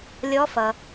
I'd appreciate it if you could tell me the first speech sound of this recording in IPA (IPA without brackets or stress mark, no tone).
lʲ